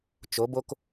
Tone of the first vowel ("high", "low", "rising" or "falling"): rising